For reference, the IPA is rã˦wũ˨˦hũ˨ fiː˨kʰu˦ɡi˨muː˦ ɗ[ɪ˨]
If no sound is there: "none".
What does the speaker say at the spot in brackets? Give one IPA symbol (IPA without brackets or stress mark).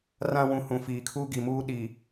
i˨